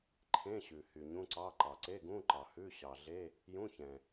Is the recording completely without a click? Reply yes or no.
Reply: no